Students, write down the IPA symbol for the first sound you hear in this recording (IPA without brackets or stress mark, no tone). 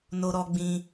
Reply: n